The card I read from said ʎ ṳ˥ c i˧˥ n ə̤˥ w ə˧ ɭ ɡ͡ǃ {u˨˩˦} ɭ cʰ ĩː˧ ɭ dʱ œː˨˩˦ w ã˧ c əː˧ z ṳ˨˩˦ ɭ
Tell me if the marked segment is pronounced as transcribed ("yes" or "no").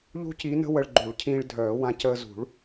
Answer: yes